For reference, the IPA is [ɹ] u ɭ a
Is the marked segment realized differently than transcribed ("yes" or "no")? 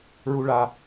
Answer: no